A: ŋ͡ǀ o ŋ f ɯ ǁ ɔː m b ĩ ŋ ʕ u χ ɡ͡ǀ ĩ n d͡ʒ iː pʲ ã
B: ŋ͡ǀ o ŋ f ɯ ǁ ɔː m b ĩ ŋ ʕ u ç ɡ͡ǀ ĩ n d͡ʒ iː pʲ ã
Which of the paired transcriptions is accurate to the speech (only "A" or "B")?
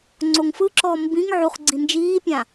A